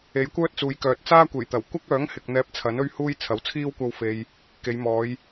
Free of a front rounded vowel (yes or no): no